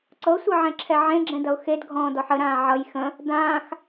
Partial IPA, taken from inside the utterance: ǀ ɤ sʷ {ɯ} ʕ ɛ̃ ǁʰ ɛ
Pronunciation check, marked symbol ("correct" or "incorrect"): incorrect